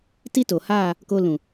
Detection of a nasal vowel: present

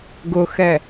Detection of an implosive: absent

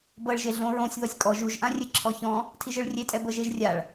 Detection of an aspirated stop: present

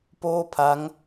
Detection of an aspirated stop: present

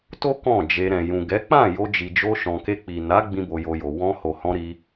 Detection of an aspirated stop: absent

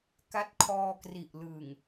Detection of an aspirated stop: present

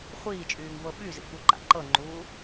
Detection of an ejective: present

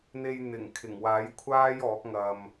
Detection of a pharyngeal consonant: absent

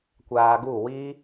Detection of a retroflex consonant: absent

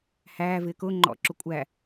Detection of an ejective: present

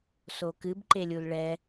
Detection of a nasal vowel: absent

